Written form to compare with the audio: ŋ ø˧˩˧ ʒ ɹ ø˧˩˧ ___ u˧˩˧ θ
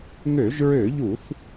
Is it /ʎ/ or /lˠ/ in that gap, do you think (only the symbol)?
ʎ